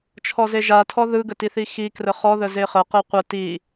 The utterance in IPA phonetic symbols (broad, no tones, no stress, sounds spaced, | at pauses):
t͡ʃʰ ɔ z e ʒ a tʰ ɔ ð ɯ ɡ ə t i θ i x i k r ə χ ɔ ð ə z e χ ə q e qʷ ə t i